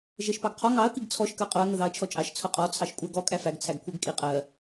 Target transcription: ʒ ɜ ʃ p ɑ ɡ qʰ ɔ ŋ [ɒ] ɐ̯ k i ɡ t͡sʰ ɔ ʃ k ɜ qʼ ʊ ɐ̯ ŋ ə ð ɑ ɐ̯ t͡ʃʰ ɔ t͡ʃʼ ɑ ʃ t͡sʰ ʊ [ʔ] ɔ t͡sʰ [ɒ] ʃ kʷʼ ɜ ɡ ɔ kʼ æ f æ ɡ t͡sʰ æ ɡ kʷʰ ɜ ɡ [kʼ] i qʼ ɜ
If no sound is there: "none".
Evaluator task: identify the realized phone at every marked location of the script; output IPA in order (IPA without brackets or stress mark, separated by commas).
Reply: ɑ, qʼ, ɑ, kʼ